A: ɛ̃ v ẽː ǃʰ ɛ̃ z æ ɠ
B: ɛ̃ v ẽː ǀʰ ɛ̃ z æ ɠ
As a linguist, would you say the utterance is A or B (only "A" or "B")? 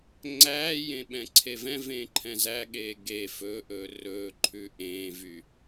A